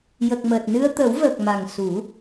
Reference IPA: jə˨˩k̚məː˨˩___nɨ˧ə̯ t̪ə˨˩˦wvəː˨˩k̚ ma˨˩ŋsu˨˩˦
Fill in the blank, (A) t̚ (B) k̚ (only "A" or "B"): A